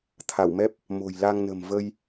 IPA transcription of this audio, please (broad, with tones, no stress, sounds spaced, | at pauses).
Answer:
t̪ʰ a˧˩ w m ɛ˦˥ p̚ | m o̤˨˩ j l a˧ ŋ n ə̤˨˩ m v ə˧ j